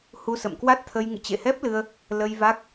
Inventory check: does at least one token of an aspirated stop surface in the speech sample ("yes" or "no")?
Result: yes